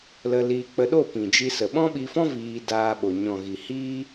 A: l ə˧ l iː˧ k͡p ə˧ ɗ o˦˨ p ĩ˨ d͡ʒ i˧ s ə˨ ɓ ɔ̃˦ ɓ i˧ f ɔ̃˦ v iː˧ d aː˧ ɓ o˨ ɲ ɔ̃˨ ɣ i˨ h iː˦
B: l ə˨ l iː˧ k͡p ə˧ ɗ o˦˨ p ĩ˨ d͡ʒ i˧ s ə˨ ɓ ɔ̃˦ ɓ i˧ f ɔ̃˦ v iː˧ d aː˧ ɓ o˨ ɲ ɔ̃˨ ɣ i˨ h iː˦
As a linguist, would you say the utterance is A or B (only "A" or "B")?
A